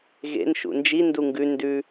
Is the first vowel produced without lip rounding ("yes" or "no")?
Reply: yes